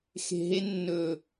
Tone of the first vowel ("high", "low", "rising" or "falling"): low